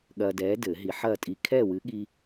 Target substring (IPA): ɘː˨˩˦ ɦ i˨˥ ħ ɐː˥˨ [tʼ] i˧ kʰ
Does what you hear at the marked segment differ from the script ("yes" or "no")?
no